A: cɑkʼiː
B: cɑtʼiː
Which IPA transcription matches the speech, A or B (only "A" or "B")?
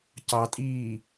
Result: B